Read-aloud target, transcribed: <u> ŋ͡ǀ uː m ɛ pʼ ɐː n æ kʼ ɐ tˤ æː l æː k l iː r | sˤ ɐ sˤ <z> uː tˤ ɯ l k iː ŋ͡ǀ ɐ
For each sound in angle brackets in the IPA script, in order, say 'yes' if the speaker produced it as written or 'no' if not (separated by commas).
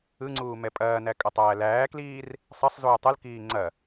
no, yes